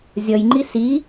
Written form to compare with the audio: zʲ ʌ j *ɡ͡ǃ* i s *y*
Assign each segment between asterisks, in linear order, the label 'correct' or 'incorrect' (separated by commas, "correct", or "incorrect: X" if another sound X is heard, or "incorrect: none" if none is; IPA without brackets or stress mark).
incorrect: ŋ͡ǃ, incorrect: i